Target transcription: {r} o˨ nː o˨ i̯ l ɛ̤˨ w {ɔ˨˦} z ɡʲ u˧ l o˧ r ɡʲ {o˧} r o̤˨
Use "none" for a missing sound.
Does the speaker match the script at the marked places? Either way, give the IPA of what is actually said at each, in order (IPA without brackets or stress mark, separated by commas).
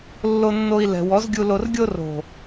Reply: lː, ɔ˨˦, o˧